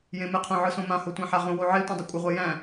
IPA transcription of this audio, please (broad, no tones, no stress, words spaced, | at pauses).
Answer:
jẽmɪqʰõ ʕɯsõmãho tʷæ̃ħaʁõwo ʕe tʷẽdˤɪkʷʼɪʁʷɛ jæ̃